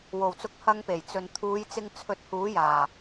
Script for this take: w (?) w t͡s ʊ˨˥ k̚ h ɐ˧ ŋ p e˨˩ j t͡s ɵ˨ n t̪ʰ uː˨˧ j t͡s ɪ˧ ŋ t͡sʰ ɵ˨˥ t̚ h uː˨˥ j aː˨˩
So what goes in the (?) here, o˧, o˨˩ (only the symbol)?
o˨˩